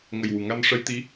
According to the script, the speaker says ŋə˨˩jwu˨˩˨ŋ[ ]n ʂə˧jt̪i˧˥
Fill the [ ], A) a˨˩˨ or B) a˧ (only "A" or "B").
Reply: B